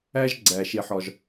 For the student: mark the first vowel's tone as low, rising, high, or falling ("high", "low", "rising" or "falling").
high